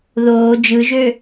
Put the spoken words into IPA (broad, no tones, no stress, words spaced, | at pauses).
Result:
ðoː d͡ʒɯʒø